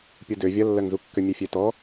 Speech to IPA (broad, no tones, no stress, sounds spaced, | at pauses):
pʲ u d ø vʲ ɐ lː ɜ ŋ z u kː ø mʲ e fʲ ø t ɔ